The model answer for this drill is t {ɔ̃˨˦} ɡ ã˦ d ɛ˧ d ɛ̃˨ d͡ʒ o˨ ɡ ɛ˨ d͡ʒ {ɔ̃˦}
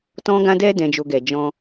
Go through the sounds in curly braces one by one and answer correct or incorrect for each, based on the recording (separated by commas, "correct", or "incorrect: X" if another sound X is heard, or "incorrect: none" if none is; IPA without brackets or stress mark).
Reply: incorrect: ɔ̃˦, incorrect: ɔ̃˧